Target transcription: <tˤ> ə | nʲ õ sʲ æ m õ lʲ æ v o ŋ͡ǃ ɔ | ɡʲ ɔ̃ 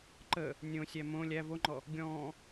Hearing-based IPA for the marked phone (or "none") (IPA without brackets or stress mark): ǃ